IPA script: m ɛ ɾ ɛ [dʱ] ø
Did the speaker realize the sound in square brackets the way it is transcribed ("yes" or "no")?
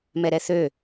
no